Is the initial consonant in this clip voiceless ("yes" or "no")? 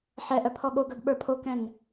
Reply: yes